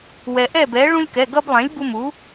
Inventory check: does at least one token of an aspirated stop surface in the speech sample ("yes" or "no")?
no